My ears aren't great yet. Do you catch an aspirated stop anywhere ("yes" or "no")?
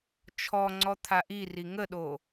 yes